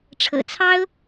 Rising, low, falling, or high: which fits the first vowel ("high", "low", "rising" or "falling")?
low